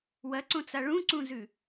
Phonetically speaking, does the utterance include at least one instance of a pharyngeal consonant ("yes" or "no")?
no